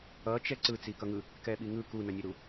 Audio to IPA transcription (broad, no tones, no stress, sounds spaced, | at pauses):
ʌ t͡ʃ ɛ ǀ ɯ t͡s i k ʌ ŋ ɯ | k ɛ ɓ i ŋ ɯ k u n ʌ nʲ ɛ ɾ u